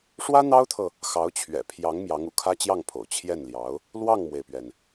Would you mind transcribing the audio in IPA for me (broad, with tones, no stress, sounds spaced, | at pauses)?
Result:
ʂ w ä˥ n̪ ɑ˥ ʊ̯ t̪ʰ ɤ˨ | x ɑ˧˥ ʊ̯ t͡ɕʰ ɥ ɛ̰˨˩ pʰ j ɑ˧˥ ŋ m j ɑ˧˥ ŋ ṵ˨˩ kʰ ä˥ t͡ɕ j ɑ˥˩ ŋ pʰ o̰˨˩ ʊ̯ t͡ɕʰ j ɛ˥˩ n l j ɑ˧˥ ʊ̯ | l w ɑ˥˩ ŋ m w e˩ ɪ̯ p ɥ ɛ˩ n